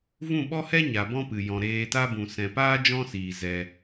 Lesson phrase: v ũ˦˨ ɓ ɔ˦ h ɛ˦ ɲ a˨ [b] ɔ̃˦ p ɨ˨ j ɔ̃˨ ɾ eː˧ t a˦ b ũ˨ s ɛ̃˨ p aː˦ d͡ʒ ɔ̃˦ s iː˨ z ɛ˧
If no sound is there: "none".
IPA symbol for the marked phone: b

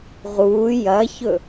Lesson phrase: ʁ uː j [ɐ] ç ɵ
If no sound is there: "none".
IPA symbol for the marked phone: ɐ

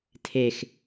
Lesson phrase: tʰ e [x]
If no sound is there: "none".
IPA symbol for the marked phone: x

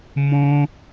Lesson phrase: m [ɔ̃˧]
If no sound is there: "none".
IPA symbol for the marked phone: ɔ̃˧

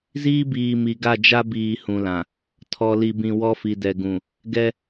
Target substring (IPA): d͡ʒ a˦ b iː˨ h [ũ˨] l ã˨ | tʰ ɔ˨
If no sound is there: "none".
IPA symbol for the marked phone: ũ˨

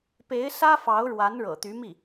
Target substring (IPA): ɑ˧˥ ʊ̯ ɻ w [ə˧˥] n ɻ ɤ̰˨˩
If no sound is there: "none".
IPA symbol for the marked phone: a˧˥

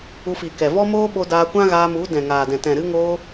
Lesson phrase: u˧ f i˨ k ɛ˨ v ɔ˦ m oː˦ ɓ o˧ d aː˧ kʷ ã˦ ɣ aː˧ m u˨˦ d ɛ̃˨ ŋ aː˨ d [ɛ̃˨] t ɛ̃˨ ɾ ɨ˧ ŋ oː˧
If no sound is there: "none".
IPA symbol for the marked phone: ɛ̃˨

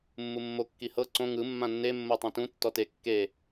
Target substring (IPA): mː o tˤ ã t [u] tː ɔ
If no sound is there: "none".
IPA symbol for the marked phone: ũ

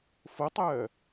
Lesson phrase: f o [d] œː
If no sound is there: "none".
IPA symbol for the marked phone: tˤ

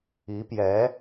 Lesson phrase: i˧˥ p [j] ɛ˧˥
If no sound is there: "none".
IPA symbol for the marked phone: j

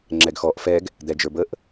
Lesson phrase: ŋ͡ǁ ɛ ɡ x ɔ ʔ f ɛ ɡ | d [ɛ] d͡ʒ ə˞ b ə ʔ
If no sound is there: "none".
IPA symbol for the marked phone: ɛ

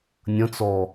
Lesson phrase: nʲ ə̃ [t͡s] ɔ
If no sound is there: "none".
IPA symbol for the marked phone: t͡s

